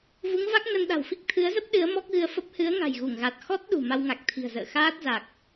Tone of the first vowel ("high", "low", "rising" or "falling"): rising